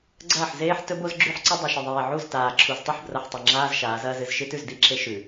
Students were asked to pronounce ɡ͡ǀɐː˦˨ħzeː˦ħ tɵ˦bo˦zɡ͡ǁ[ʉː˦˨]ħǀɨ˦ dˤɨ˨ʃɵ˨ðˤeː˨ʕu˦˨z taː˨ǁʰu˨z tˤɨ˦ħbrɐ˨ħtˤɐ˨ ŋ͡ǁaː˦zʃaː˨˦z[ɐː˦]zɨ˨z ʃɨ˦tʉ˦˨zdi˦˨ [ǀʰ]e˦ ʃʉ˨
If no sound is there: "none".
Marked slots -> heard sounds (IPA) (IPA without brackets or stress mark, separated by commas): ʉ˦˨, ɐː˦, ǁʰ